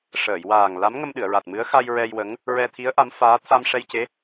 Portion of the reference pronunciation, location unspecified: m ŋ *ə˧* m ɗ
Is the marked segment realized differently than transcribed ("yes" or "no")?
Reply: no